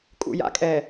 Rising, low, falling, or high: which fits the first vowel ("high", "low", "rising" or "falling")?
low